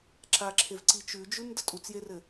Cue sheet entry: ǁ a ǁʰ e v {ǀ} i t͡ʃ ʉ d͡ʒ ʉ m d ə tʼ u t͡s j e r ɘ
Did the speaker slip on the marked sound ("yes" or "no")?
no